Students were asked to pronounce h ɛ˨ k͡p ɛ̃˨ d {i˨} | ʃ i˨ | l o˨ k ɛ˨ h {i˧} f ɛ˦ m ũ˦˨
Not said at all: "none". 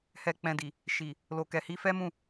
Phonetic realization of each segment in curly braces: i˨, i˧

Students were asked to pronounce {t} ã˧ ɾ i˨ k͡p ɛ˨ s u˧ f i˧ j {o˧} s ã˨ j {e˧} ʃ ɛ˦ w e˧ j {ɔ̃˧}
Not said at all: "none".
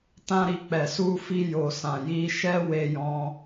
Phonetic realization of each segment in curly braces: t, o˨, i˧, ɔ̃˧

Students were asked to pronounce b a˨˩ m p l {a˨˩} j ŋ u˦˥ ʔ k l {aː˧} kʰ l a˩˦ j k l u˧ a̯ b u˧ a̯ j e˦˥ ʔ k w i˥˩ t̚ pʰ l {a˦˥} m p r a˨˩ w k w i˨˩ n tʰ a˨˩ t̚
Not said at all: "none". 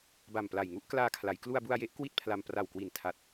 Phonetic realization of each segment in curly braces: a˨˩, aː˧, a˧

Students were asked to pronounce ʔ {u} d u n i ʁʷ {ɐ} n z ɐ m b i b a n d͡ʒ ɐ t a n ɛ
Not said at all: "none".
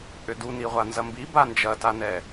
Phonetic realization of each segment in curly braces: ʏ, a

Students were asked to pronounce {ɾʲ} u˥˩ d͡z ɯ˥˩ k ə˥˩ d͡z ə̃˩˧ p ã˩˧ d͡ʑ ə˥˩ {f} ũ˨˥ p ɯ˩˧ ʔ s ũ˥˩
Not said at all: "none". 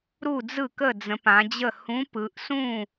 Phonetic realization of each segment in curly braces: ɾ, h

